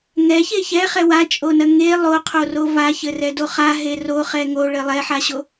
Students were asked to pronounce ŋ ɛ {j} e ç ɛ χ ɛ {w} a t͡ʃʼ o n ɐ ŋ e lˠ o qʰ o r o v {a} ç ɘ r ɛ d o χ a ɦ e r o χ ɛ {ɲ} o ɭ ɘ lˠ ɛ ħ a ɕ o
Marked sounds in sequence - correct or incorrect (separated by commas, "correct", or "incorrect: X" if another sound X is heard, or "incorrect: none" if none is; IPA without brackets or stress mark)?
incorrect: ç, correct, correct, incorrect: ŋ